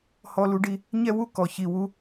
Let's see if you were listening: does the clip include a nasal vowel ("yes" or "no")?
no